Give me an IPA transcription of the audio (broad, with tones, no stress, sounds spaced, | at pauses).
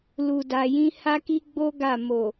l u˨ d a˨ j ĩ˧ h a˦ k i˦ ɡ͡b o˦ ɡ a˦˨ m o˨